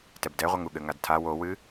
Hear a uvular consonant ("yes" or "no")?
yes